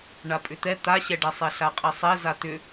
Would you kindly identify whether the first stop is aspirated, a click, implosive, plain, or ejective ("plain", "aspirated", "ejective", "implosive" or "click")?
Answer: ejective